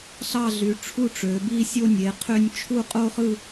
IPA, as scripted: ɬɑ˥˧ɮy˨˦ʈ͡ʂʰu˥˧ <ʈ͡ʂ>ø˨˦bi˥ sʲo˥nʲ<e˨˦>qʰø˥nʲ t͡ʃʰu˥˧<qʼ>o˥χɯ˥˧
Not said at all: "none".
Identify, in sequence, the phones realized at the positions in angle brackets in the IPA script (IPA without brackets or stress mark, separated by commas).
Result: ʈ͡ʂ, e˨˦, qʼ